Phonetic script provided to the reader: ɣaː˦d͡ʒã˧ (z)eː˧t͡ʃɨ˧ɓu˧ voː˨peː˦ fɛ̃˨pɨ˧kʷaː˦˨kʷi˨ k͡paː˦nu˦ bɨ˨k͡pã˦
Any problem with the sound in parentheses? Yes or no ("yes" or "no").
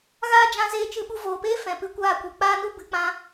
no